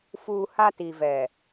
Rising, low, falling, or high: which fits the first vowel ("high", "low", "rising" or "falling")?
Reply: high